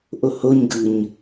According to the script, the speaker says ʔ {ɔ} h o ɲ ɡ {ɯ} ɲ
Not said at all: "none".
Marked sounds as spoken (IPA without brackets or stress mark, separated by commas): o, ɯ